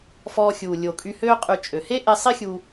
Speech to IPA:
f ɔː˧ xʲ uː˨ lʲ o˨ kʼ y˧ h øː˦ qʼ y˧ t͡ʃʼ ø˨ h e˦ ʔ e˧ sˤ i˦ xʲ u˧

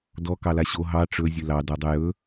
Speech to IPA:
d ɔ k ɑ l a ɕ o ɦ ɑ ʈ͡ʂ ɵ zʲ ɵ l ɑ d a dˤ ʊ j ɵ

